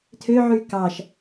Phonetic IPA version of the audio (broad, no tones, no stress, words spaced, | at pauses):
tʰøʕy kɑʃ